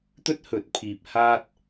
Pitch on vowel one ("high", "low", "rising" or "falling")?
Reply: high